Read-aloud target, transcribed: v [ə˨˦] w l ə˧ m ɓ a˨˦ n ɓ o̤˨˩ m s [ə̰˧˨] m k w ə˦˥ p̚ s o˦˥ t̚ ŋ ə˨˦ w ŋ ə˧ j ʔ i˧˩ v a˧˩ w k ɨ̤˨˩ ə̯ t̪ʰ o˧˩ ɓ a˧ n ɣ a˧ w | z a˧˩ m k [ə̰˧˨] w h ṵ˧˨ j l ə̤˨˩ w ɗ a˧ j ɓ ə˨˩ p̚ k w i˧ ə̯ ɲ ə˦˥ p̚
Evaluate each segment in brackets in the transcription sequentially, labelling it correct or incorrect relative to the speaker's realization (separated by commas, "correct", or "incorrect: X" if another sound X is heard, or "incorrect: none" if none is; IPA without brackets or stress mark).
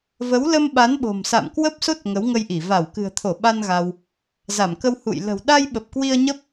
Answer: correct, incorrect: a̰˧˨, incorrect: ə˧